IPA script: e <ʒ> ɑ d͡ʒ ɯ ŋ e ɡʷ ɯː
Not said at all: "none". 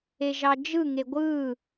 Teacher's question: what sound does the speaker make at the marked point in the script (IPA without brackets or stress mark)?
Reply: ʒ